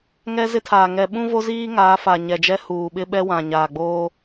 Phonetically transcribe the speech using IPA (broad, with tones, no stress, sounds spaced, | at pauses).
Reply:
ŋ ɛ˦ z ɪ˦ tʰ aː˨ ŋ ɛ˨ ɓ ũ˦ v o˦ z iː˦ ŋ aː˨˦ f a˨ ɲ ɛ˨ d͡ʒ ɛ˦ h uː˨ ɓ ɪ˦ ɓ ɛ˦ w ã˨ ɲ aː˨ ɡ͡b oː˦